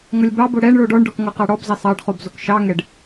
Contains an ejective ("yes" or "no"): no